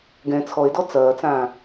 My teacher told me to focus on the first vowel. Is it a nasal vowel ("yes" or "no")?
yes